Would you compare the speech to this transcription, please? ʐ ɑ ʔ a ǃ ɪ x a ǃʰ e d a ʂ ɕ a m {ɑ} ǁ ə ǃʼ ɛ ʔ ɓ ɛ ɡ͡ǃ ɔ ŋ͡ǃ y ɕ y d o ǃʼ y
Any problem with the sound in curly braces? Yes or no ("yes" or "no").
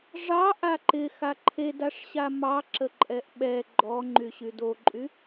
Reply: no